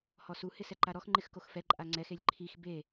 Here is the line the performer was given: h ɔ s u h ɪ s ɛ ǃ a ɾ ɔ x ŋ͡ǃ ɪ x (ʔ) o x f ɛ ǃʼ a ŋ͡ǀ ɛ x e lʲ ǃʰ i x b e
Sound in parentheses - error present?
yes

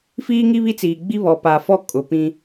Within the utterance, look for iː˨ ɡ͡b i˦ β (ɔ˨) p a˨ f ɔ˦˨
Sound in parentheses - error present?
no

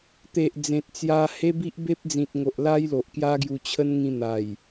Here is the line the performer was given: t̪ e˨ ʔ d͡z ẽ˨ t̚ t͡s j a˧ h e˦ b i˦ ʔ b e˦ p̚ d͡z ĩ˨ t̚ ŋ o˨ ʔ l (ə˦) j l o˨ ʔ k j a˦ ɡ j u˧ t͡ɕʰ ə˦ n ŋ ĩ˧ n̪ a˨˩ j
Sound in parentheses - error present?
yes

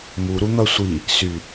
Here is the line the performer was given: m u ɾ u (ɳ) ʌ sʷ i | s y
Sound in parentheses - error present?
yes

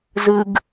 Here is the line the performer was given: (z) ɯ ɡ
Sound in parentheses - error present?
no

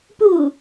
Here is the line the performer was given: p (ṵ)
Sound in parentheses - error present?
yes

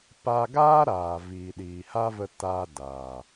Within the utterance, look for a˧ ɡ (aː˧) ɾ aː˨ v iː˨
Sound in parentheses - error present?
yes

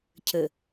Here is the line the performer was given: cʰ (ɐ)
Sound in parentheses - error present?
yes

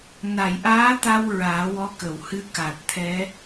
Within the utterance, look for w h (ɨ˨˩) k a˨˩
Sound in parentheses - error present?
yes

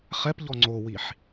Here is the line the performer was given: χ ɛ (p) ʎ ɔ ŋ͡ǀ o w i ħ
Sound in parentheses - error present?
no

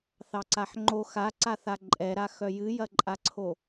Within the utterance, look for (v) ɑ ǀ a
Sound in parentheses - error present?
yes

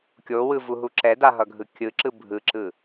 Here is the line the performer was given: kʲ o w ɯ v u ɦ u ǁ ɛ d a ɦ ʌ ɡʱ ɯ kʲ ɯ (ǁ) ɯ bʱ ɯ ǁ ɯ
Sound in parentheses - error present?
no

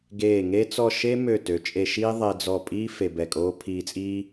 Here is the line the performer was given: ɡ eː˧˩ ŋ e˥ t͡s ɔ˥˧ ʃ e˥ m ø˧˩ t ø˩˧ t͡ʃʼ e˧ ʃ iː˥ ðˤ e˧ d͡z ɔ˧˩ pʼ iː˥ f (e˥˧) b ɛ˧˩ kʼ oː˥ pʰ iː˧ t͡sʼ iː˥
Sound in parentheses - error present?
yes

